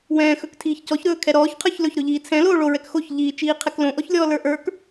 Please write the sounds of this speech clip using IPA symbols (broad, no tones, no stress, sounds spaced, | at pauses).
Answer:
w ɛ̃ː x ɵ k tʰ iː ç c ɔ ç ɾ ɵː kʰ ɛ ɾ ɔː ç qʰ ə˞ ç l ɵ ç ɾ ɵ ʎ iː t͡sʰ ɛ̃ l oː ɭ o ɹ ɛ k x o ç ʎ iː t͡ʃ iː qʰ ɛ k l õ ʔ ɔ ç lʲ ɔː l ə˞ ʔ ə˞ k